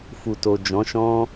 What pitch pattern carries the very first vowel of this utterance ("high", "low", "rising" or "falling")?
low